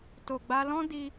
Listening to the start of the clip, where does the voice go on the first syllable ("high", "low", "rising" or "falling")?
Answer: low